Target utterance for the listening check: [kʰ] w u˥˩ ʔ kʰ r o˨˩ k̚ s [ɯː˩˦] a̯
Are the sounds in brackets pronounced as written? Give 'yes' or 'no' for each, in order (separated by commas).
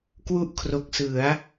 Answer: no, no